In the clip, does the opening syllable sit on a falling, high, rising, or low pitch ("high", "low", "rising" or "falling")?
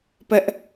high